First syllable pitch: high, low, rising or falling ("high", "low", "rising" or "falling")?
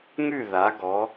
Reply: falling